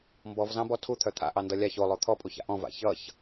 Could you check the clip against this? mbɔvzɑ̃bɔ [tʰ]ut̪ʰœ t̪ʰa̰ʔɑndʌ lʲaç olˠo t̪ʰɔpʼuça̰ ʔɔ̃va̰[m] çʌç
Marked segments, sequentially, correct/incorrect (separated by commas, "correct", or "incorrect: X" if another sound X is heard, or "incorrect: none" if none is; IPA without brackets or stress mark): correct, incorrect: none